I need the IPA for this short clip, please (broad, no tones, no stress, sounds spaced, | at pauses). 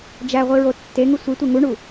d͡ʒ æ ʁʷ i ɹ o tː e ŋ u sʷ i tʷ e ŋ u ɳ u